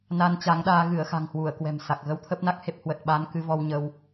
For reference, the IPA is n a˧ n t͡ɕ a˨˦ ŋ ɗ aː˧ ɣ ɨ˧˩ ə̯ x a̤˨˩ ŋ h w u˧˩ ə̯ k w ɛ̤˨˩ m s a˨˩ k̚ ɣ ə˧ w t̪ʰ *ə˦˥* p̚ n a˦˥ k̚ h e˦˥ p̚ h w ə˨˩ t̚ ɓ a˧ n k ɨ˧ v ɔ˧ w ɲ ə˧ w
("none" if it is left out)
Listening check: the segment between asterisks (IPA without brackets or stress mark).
ə˦˥